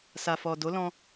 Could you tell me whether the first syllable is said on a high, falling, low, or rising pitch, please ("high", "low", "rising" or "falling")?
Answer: low